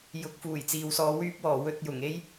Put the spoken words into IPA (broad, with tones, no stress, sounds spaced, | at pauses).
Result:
j ʊ˨˥ k̚ f uː˨˩ j t͡s iː˨ w s ɔː˧ w yː˥ p̚ w ɔː˨˩ w ɵ˧ t̚ j ʊ˨˩ ŋ e˥ j